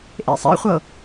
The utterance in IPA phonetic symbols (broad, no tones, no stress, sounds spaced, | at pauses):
ʔ ḛ sˤ ḛ χʷ ɤ